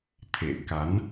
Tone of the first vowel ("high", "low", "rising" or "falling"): low